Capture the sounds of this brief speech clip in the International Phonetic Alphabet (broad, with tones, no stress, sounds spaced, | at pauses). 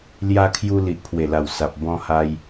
l j a˧ kʰ j u˧ l i˨ ʔ pʰ w e˨˩ l a˨˩ w s a˨ p̚ b ɔ̃˦ h a˦ j